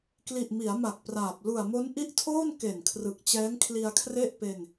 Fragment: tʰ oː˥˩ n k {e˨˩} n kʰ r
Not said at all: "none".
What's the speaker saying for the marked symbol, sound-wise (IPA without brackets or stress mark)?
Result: e˨˩